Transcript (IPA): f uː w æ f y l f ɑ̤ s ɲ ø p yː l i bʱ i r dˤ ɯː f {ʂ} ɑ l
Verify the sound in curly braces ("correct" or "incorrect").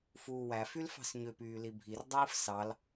incorrect